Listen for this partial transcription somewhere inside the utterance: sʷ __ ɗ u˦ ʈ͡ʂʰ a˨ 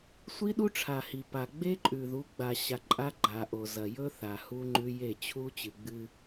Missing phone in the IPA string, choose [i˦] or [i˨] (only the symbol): i˦